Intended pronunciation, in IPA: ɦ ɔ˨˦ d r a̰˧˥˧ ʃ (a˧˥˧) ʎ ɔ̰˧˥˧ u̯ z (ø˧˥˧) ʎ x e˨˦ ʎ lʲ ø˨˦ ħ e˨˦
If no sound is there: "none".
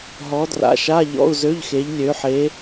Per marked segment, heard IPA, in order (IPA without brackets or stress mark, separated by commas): a˧˥˧, ø˧˥˧